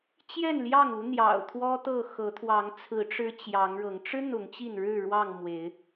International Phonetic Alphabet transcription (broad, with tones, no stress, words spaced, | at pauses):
t͡ɕjɛ˥˨nljɑ˥˨ŋu˨˦ n̪jɑ̰˨˩ʊ̯t̪ʰwɔ˦t̪ɤ˥˨ xɤ˨˦t̪ʰwɑ˨˦ŋ t͡sʰɹ̩˨˦ ʈ͡ʂɻ̩˦t͡ɕjɑ˨˦ŋɻɤ˨˦ŋ ʈ͡ʂɻ̩˦ n̪ʊ˨˦ŋt͡ɕi˥˨n ɻɻ̩˥˨ɻwɑ˥˨ŋ mwe˨˦ɪ̯